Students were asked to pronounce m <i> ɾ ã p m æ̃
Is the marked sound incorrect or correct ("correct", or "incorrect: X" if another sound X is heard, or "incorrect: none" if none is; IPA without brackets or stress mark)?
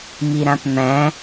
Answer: correct